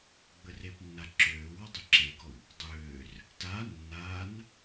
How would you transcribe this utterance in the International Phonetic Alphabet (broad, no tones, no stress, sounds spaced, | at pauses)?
ɡ͡b ə r e p nː a ǁ øː w ɔ dˤ e ǁ e ɡ ɔ w | dˤ øː r | t a nː a n